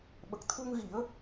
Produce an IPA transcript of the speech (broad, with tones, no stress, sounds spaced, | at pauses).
ɓ ə˨˩ k̚ t̪ʰ u˧ ŋ ɣ i˨˩˦ ə̯